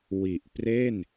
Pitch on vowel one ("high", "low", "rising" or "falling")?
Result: low